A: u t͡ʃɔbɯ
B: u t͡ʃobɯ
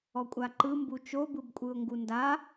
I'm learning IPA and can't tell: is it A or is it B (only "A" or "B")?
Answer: B